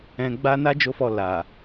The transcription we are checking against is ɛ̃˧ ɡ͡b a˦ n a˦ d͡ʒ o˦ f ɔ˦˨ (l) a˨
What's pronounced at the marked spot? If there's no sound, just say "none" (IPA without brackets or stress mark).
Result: l